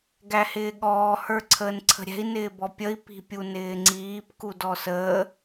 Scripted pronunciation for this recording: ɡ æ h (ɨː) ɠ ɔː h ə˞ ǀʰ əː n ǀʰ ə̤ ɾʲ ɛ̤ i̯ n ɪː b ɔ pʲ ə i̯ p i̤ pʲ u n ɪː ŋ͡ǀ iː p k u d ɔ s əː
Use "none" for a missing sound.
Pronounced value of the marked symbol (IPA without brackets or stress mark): ɪː